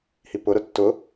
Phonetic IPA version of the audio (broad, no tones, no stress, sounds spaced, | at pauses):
h i p ʊ ɾ ʊ tː ʊ